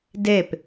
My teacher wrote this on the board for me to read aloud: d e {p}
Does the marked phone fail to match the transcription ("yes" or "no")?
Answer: no